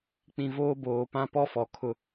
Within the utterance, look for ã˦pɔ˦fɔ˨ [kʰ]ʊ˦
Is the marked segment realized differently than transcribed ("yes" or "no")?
no